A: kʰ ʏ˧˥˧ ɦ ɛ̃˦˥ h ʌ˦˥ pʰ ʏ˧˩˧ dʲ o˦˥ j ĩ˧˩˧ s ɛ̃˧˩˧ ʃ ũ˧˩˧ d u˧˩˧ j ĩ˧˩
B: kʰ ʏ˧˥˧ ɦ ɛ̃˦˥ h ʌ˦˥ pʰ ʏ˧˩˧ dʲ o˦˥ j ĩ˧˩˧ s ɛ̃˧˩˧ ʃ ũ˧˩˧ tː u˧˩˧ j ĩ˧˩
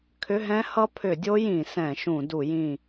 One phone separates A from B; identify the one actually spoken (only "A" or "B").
A